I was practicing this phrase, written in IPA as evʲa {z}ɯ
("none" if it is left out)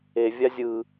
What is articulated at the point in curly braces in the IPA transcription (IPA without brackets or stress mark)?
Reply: zʲ